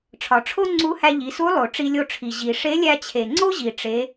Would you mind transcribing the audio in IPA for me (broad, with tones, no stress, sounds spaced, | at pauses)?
ʈ͡ʂʰ ɒ˩ ʈ͡ʂʰ o˥ ŋ͡ǀ u˧˥ h æ˧ ʎ i˩˧ s u˧˥ lˠ o˩ ʈ͡ʂ i˧ lʲ o˧ ʈ͡ʂʰ i˩ ʑ i˩ ʂ e˧˥ lʲ æ˧ t͡ɕʰ e˩ ŋ͡ǀ o˥ ʑ i˩ ʈ͡ʂ e˩˧